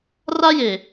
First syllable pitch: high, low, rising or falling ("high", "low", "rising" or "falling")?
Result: high